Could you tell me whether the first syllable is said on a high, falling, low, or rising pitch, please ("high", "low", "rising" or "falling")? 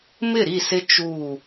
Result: falling